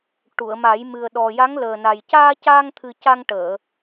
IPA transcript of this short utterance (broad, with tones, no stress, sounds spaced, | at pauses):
ʈ u˨˩˨ ə̯ m a˨˩˦ j m ɨ˨˩ ə̯ ɗ ɔ˨˩ j a˧˥ ŋ l əː˨˩ n a˨˩ j c aː˧ c aː˧ ŋ t̪ʰ ɨ˨˩ c a˧ ŋ ʈ əː˨˩˨